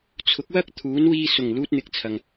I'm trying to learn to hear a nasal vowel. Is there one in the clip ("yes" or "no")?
no